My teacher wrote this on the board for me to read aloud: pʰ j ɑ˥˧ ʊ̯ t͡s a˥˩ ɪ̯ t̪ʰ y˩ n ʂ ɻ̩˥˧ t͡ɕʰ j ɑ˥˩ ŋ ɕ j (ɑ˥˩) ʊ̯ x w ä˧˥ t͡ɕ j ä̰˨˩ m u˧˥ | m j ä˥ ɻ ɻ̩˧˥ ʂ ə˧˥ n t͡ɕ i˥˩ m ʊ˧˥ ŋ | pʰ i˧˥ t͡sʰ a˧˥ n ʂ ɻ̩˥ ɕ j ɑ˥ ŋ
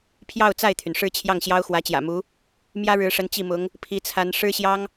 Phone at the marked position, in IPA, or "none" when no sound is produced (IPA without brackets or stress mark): ɑ˥